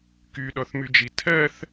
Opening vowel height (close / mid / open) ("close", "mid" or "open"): close